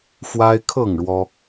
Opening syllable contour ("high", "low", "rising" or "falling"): high